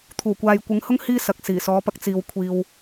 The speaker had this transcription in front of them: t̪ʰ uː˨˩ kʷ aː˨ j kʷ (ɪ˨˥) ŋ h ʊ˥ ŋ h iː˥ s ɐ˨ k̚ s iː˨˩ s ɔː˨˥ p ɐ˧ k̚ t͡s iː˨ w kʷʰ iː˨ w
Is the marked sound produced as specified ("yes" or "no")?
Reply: yes